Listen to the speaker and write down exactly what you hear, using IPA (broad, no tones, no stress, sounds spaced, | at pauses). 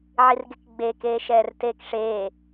ʕ i r ɡ e k ɡ͡b e k eː ʃ ɛː r t eː k ʂ eː